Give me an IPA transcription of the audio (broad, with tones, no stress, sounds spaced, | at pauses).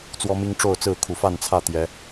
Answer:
t͡s w ɔ˦ m i˦ ŋ ʈ͡ʂ o˥˨ ʊ̯ t͡s ɹ̩˥˨ kʰ u˨˩ f a˥˨ n t͡sʰ ä˥˨ t̪ j ɛ˨˦